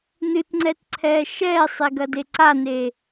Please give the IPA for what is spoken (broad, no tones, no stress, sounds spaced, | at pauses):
n ɨ t ŋ͡ǀ ɛ t ǀʰ ɛː ʃ ɛː sˤ e ɡ ɐ d e ǀ a n eː